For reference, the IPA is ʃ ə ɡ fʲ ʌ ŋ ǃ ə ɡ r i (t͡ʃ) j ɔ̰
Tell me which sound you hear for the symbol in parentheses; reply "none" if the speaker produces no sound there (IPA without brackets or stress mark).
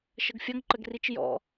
t͡ʃ